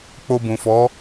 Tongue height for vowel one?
mid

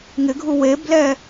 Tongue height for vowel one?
high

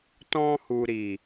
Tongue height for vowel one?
mid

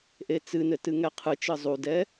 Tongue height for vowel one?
mid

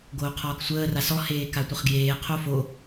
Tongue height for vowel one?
mid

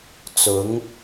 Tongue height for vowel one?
high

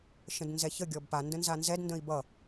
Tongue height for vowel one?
mid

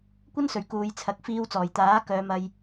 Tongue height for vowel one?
low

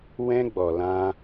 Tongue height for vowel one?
mid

